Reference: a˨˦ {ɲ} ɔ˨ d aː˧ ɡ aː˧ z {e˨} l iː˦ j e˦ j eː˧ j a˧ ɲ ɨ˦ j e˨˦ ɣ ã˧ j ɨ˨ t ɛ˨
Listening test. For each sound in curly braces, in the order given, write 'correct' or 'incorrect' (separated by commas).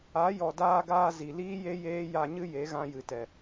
incorrect, incorrect